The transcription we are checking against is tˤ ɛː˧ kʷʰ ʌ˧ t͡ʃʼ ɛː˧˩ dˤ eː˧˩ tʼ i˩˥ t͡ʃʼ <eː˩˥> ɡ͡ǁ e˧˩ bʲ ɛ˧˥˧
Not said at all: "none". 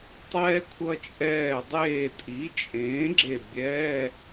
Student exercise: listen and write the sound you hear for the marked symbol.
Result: ẽː˩˥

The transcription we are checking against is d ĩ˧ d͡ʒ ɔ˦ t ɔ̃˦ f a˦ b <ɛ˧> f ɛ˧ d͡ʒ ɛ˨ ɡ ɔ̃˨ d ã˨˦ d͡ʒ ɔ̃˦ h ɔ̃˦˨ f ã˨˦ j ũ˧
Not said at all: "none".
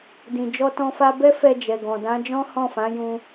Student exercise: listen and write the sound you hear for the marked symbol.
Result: ɛ˦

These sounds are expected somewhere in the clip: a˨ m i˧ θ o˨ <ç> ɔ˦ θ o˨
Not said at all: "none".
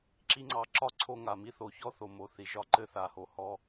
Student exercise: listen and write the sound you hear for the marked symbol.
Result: ç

